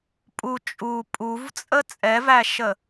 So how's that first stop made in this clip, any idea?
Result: ejective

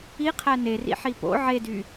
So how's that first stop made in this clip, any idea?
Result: aspirated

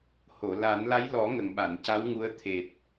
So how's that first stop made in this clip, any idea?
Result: implosive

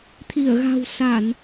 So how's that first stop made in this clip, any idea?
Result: aspirated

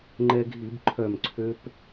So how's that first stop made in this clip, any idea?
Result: click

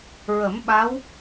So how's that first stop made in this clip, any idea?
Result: implosive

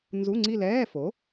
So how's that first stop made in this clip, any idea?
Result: click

